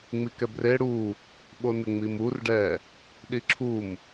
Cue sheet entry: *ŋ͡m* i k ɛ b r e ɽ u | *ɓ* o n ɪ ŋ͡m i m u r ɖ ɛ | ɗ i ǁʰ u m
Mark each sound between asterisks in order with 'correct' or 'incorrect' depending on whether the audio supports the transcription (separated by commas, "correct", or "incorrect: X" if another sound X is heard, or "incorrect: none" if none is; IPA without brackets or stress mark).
correct, correct